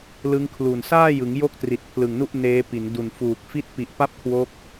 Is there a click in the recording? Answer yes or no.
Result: no